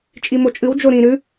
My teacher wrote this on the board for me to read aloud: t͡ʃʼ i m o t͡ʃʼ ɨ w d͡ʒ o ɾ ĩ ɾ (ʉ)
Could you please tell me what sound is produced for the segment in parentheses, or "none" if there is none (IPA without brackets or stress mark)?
ʉ